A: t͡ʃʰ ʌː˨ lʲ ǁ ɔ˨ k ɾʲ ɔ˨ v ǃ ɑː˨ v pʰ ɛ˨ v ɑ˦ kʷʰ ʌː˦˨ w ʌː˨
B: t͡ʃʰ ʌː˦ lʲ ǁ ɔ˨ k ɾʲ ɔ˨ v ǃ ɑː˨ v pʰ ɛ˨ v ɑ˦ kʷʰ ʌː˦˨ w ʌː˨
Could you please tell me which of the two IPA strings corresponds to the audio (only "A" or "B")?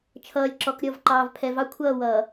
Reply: A